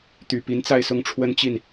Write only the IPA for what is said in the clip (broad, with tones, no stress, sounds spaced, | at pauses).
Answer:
t̪ y˨˩ p i˧˥ n t͡s a˥˧ ɪ̯ s ʊ˥˩ ŋ ʈ͡ʂʰ w ə˥ n t͡ɕ i˥˩ n